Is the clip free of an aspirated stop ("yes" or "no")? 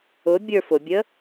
yes